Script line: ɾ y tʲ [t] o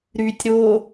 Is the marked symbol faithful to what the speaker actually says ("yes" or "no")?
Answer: no